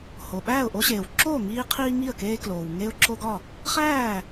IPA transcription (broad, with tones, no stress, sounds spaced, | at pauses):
h o˩ ɓ æː˥˩ ʊ̯ ʔ o˦ ɕ eː˩ w ǁ oː˥˩ ŋ iː˦ qʰ iː˦ ŋ i˥˩ ə̯ k eː˦ k l oː˩ w ŋ e˦ ʊ̯ ǁ o˦ ɡ ɒ˥˩ | χ æː˥˩